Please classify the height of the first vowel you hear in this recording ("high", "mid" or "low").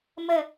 mid